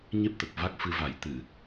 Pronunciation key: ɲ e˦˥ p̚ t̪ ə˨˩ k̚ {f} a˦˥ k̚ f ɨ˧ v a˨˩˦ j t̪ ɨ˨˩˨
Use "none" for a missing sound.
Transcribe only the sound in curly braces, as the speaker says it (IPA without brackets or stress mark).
v